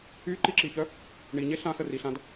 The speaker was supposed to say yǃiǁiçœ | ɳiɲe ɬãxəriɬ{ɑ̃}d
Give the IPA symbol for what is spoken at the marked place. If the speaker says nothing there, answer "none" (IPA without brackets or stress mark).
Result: ã